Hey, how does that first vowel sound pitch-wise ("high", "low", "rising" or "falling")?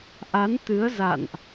rising